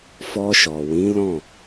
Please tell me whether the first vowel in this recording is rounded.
yes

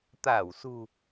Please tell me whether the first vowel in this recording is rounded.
no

